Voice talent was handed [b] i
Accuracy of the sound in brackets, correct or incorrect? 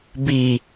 correct